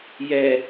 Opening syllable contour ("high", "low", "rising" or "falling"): low